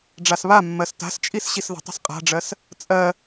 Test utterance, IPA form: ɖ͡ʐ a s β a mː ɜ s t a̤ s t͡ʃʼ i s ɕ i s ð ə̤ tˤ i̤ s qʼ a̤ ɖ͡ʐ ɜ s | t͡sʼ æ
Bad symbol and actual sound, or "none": æ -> ɜ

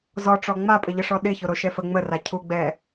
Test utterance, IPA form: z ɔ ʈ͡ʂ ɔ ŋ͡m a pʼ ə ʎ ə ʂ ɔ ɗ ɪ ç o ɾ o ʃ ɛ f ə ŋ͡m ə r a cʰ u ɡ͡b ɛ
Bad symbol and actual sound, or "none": none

